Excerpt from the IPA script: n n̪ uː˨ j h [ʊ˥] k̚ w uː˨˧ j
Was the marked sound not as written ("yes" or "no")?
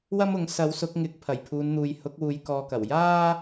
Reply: yes